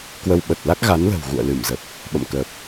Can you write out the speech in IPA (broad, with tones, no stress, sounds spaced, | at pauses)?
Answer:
k w ə˧ w ɓ ə˨˩ t̚ l a˦˥ k̚ ɣ a˨˦ n l ə̤˨˩ w ɣ ṵ˧˨ ə̯ l ɨ˧˩ m z ə˨˩ p̚ | ɓ ə̰˧˨ m k əː˨˩ p̚